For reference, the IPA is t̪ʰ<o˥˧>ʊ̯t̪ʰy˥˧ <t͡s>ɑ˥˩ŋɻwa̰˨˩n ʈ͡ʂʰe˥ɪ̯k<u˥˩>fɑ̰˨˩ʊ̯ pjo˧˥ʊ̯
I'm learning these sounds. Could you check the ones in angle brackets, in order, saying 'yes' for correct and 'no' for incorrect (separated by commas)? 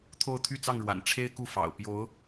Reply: yes, yes, yes